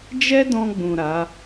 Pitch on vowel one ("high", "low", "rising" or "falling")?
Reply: high